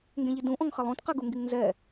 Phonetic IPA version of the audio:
ŋ ɡ ẽ ʎ i d ũ ʔ ɔ̃ ŋ χ ɛ lˠ õ t q ɛ ɡ u ŋ ɡ i ŋ n z ɛ

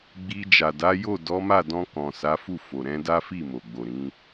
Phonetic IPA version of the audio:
ɡ͡b i˧ d͡ʒ a˨ d a˨˦ j o˦˨ d ɔ˨˦ m a˦˨ d ɔ̃˧ k ɔ̃˨ s a˨˦ f u˦˨ f o˨ ɾ ɛ̃˧ d a˦ f i˦˨ m o˨ ɡ͡b o˨ ɾ ĩ˨˦

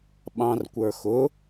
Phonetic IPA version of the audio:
ɓ ɑ̃ r kʷ ə˞ x ʊ

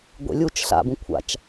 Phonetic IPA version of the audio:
ɡʷ ḛ lʲ u t͡ʃ ɬ a̰ b ũ kʷʰ a̰ t͡ʃ

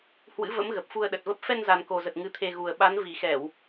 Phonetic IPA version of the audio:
h w ɨ̰˧˥ v ə̰˧˥ m ɣ ə˨˩ p̚ f u˧ ə̯ ɗ ə˨˩ t̚ v ə˦˥ p̚ f ɛ˧ n z a˨˩ n k o˨˩ z ə˨˩ t̚ ŋ ɨ˨˦ t̪ʰ e˧ ɣ u˨˩ ə̯ ɓ a˨˦ n v i˨˩ x ɛ˧˩˨ w

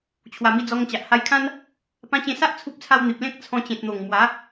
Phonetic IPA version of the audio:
t͡ɕʰ w a˨˩ m i˧ d͡z ɔ˧ ŋ t͡ɕ a˨ ʔ h a˧ j kʰ ã˦ n | p ã˧ t͡ɕ ẽ˧ s a˦ ʔ t͡sʰ u˦ p̚ t͡sʰ a˦ w n̪ i˨ p̚ l ẽ˦ k̚ t͡sʰ ɔ̃˧ t͡ɕ ẽ˨ t̚ n̪ o˨˩ ŋ m w a˨˦

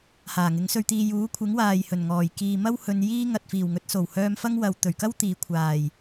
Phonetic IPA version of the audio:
h aː˨˩ ŋ ɪ˨˥ ŋ s ɵ˧ ɥ t̪ iː˧ j uː˨˥ kʷʰ ɪ˨˥ ŋ w aː˨ j h ɵ˨˩ n ŋ ɔː˨˩ j k iː˨ m ɐ˥ w h ɵ˧ n j iː˥ ŋ ɐ˨ t̚ f iː˨˩ w ŋ ɵ˨˥ t̚ s o˨˩ w h œː˧ m f ɐ˥ ŋ w ɐ˨ w t̪ ɵ˨˩ ɥ k ɐ˥ w t̪ iː˨ kʷʰ aː˨˩ j

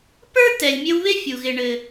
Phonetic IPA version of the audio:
p ə˞˥ t ɛ˨ lʲ mʲ ɘ˦ w β ɪ˥ fʲ u˩ ɣ ɪ˨ ɳ ɘ˨

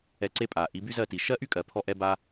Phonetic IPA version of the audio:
ɛ˧ ǀ e˦ pʼ a˨ ʔ i˨˦ b y˦ z ɜ˦˨ t i˨ ʃ ɜ˦ ʔ y˦ kʼ ɜ˨ pʰ ɔ˧ ʔ ɛ˦ b a˦

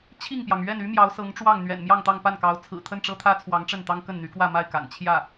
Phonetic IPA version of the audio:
t͡ɕʰ i˥˩ ŋ p j ɑ˩ ŋ ɥ ɛ˥˩ n y˥ m j ɑ˧˥ ʊ̯ s ɤ˧˥ ŋ ʈ͡ʂ w ɑ˥˩ ŋ n̪ ɥ ɛ̰˨˩ n m j ɑ˥˧ ŋ t̪ ɑ˥˧ ŋ p a˥˩ n k ɑ˧˥ ʊ̯ t͡sʰ ɹ̩˨˩ t̪ʰ ə˥˩ n ʈ͡ʂ ɤ˥ t̪ʰ ä˥ t͡sʰ w ɑ˧˥ ŋ ʈ͡ʂ ə˥˩ n t̪ ɑ˥ ŋ k ə˥˩ n n̪ y˧˥ k w ä˥˧ m a˥˩ ɪ̯ k a̰˨˩ n t͡ɕʰ j ä˥˩

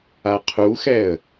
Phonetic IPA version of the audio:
a qʰ u x ɛ ə̯

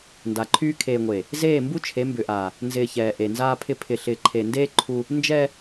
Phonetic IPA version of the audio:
n d a˨ ǃʰ yː˦ kʰ eː˨ ŋʷ eː˨ | z eː˦˨ m b u˦ t͡ʃʰ e˨˦ m b ʏ˨ ʔ aː˨ | n z ɪː˨ ç ɛː˨ ʔ e˨ n z aː˦ pʰ ɪ˦ pʰ ɪ˨ ɬ ɪː˨ ǃʰ e˨ n d eː˦ ǃʰ u˦ | n d͡ʒ ɛː˦

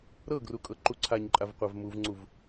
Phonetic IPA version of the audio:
ɾ ɤ ɡ r u kʼ ɤ ǃ u ǀʰ a ɲ ǃʼ a v qʷ a v m u v ŋ͡ǀ u v

